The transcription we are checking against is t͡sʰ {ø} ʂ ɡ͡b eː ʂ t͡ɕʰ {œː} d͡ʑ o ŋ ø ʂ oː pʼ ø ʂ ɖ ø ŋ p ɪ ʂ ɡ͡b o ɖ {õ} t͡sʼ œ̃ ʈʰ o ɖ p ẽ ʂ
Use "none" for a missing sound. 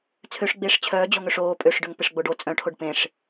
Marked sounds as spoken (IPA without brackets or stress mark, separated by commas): ø, œː, o